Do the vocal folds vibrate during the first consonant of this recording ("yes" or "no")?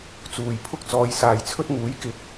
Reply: no